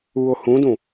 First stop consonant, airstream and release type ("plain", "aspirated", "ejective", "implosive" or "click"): plain